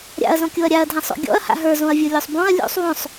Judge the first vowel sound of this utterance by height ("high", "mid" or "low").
low